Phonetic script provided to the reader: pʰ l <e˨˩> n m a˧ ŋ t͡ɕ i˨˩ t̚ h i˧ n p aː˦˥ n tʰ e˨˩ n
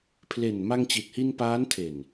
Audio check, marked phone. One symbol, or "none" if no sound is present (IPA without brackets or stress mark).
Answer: e˨˩